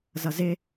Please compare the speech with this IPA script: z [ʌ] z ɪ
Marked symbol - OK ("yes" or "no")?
yes